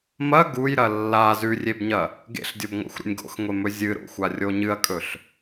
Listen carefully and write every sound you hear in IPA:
m ɐ ɡ u j ɾ ɐ lː a z ʉ rʲ e b ɲ ɐ | ɡ ḛ ɬ dʲ o b ŋʷ a̰ xʷ ɾ ṵ nʲ ɡ o̰ x ŋʷ e m ɵ zʲ ɨ ɾ o̰ xʷ a rʲ o ɲ ɨ ɐ̯ kʼ ɵ ɬ

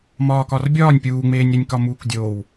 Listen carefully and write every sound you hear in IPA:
m ɒː k ɒ r bʲ ɒː nʲ pʲ uː ŋ͡m eː nʲ ɾ i nʲ k ɒ m uː k dʲ oː w

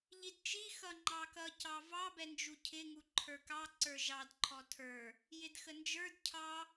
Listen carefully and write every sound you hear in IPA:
ʎ i d t͡ʃ i x ʌ ŋ͡ǃ ɑ k ʌ c ɑ v ɑ b ɛ n d͡ʒ u cʰ ɪ ŋ u ǃʰ ə˞ k ɑ ǀ ə˞ ʒ ɑ d ǃʰ ɔ tʰ ə˞ | j ɪ d x ə n d͡ʒ ə˞ d cʰ ɑ

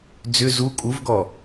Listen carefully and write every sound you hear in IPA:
d͡z ʏ z u kʼ u v ɡ ɔ

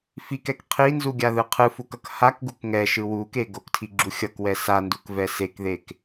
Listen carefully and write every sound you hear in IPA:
f i k ɛ k qʰ i n z u ɡʲ a ð ɯ qʰ ɯ f u k ʌ k h a k ɡ u k ŋ ɛ ʃ ɯ w u k e ɡ o k tʰ i ɡ͡ǁ u xʲ ʌ k w ɛ s a n d u k v ɛ s e k ð e k

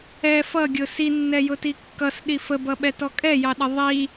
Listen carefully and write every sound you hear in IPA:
ɛ f ʌ ɡʲ ʊ s i nː ɛ j ʊ t i kː ʌ s ɗ i f ə b ʌ ɓ ɛ t ɔ kʼ ɛ j ɑ ɗ ə ðˤ i

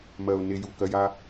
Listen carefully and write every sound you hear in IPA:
m ɜ˨ ʊ̯ n e˧ j u˨ k ɜ˧ j a˦

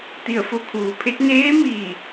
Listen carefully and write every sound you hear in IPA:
t̪ i˧˩ ə̯ f o˧ kʰ uː˩˧ pʰ e˧˥ t̚ n eː˧˥ m iː˧˩

